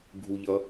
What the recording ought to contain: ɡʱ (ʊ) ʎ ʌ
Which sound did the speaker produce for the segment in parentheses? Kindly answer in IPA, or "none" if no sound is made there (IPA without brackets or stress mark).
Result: u